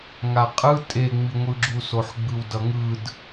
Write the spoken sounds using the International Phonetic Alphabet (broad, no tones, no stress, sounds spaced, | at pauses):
ŋ a qʼ ɯ tʼ e ŋ͡m i ŋʷ ɯ ɡ͡ǁ u s o ħ ɡ͡b ɯ w d ʌ ŋ ɯ d